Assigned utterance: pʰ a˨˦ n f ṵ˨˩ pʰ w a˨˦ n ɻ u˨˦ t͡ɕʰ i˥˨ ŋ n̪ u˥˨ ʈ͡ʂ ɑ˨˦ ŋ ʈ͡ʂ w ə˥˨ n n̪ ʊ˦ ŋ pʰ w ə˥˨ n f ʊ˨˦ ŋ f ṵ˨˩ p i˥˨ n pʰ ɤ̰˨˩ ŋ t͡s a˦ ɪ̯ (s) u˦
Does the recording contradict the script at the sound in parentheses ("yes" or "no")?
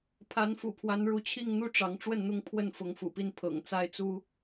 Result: yes